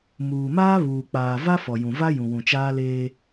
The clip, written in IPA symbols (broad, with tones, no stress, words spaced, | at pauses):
muː˨maː˦βuː˨k͡paː˨ va˦fɔ˨jũ˨va˦ jũ˨wũ˨t͡ʃaː˦leː˦